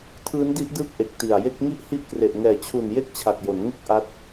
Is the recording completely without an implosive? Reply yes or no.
yes